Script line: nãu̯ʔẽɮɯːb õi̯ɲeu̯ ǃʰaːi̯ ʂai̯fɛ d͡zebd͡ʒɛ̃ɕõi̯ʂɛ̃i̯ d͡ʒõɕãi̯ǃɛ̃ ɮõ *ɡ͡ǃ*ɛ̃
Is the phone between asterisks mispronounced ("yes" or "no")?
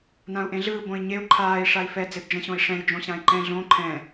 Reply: yes